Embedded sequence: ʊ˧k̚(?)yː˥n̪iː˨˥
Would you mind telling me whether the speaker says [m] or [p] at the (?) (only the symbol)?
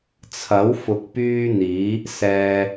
p